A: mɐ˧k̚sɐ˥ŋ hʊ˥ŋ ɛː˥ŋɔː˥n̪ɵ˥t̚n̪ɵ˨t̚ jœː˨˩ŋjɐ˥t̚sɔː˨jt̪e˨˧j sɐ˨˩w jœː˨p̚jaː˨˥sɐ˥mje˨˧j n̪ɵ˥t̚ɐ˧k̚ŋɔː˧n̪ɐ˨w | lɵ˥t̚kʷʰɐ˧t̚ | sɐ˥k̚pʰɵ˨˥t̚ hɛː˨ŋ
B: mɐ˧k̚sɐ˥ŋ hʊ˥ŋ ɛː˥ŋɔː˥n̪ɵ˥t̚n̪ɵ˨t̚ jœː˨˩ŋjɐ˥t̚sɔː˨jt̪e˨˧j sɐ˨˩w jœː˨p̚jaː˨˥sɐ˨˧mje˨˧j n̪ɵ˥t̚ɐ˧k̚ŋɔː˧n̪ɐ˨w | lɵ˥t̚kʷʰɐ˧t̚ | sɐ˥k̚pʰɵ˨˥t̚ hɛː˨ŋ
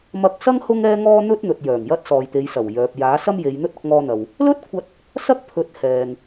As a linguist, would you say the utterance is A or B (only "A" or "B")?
A